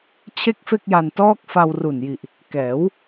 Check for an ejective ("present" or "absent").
absent